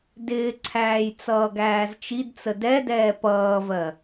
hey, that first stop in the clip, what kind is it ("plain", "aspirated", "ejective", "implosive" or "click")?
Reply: plain